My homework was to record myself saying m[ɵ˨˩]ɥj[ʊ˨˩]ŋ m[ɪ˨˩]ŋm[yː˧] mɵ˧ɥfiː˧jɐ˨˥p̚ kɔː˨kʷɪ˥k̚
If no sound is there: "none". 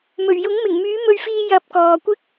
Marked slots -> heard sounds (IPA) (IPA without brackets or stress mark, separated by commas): ɵ˨˩, ʊ˨˥, ɪ˨˩, yː˨˥